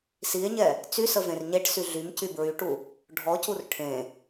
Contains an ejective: no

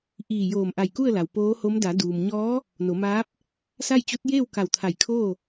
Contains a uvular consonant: no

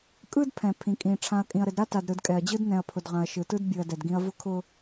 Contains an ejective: yes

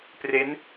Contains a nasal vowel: no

